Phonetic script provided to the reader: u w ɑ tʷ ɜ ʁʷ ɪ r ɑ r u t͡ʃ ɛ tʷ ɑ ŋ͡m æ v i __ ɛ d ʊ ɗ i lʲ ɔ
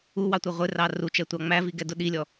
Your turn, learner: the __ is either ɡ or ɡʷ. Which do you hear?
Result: ɡ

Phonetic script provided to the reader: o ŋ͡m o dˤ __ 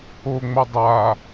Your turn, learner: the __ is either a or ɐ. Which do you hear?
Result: a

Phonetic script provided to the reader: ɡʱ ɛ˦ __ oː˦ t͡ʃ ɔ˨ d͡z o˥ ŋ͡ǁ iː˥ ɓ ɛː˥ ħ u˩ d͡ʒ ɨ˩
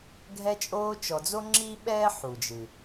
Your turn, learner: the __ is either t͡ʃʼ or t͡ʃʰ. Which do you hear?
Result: t͡ʃʼ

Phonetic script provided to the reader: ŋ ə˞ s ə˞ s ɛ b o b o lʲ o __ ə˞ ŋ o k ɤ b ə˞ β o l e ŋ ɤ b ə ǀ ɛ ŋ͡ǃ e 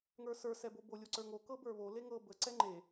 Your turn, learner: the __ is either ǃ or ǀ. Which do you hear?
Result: ǀ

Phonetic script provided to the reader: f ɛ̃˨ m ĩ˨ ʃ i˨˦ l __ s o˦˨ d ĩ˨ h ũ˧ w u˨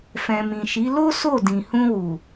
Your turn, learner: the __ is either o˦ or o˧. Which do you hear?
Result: o˦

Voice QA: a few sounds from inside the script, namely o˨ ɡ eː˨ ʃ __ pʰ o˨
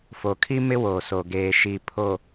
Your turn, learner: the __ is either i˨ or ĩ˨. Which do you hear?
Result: i˨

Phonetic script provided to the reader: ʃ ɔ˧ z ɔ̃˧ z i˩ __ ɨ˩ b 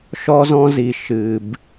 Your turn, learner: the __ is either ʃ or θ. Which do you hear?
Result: ʃ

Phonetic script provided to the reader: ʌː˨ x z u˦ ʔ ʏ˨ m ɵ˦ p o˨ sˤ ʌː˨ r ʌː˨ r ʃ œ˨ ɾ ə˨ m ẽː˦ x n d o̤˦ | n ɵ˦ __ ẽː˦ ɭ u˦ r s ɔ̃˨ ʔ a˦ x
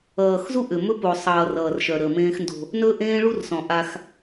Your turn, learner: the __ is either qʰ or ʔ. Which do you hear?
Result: ʔ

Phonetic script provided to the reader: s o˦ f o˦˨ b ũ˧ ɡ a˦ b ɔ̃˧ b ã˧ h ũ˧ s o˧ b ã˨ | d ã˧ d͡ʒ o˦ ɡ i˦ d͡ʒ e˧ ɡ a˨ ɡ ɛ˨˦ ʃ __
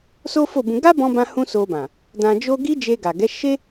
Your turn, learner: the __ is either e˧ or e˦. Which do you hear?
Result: e˦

